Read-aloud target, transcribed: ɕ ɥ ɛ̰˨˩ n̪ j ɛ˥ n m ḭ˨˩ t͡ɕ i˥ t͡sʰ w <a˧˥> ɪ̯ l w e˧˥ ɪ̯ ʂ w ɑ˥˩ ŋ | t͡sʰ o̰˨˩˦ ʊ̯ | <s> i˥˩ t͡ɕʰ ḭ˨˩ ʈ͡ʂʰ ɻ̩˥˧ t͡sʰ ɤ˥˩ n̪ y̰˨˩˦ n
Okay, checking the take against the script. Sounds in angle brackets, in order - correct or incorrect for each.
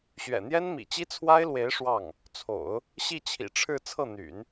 incorrect: a˥, incorrect: ɕ

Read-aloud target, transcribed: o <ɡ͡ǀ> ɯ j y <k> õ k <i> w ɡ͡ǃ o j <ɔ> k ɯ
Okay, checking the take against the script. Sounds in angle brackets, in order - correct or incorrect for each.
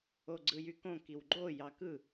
correct, correct, correct, incorrect: ɑ

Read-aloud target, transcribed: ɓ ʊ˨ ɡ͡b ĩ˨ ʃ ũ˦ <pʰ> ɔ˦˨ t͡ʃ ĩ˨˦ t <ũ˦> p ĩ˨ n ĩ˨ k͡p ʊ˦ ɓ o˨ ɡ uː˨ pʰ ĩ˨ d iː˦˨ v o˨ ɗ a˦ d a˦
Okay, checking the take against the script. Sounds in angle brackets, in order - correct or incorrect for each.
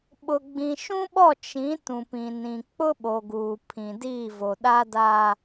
incorrect: ɓ, incorrect: ũ˨

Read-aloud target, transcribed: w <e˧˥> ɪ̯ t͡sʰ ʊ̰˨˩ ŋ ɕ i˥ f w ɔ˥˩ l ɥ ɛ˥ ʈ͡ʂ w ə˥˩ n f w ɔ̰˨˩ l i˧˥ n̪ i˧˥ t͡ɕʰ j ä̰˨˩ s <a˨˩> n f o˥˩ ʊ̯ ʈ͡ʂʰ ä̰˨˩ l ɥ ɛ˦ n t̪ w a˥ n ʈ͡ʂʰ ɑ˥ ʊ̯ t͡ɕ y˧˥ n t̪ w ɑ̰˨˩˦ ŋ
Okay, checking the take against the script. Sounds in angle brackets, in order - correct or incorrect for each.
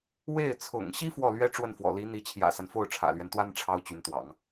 incorrect: e˥˩, incorrect: a˦

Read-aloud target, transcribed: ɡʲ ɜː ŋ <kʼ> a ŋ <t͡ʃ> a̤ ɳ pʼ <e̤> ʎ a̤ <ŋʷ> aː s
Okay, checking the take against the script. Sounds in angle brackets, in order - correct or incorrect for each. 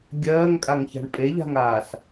correct, incorrect: ç, incorrect: e, incorrect: ŋ

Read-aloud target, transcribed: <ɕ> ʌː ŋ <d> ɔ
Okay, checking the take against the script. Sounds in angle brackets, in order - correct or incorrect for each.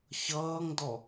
correct, correct

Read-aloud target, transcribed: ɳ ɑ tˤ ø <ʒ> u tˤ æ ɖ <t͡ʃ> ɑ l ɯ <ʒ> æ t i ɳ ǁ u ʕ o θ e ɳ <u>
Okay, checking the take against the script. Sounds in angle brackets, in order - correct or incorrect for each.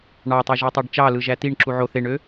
correct, correct, correct, incorrect: ø

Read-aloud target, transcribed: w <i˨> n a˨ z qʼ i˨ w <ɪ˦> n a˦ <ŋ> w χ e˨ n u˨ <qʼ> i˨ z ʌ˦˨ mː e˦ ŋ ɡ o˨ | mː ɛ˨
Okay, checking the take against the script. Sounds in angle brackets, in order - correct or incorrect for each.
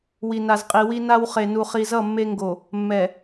correct, incorrect: i˦, incorrect: none, incorrect: χ

